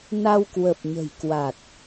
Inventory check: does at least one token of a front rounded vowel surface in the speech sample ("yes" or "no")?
no